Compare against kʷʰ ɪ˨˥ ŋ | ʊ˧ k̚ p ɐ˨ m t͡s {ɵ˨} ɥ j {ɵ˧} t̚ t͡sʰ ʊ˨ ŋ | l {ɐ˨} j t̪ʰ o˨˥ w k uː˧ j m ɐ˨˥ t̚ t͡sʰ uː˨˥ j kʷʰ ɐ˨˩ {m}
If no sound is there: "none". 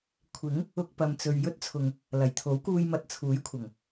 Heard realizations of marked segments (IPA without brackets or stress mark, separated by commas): ɵ˨, ɵ˥, ɐ˨˩, ŋ